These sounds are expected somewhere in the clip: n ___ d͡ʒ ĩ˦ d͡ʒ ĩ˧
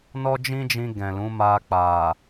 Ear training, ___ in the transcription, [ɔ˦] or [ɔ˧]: ɔ˦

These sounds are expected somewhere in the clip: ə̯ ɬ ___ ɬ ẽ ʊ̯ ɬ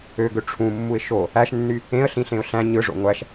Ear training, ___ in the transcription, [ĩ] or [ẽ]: ĩ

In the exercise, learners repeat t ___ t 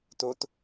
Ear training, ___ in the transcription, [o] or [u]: o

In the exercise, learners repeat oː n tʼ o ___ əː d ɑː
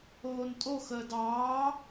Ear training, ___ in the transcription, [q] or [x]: x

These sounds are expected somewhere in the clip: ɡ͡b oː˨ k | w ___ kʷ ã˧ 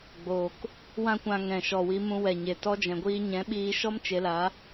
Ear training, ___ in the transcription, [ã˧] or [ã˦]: ã˦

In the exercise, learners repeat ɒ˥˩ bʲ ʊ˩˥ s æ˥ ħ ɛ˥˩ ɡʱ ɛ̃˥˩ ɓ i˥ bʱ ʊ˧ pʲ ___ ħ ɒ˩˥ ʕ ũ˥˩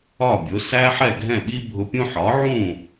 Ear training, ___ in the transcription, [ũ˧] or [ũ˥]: ũ˥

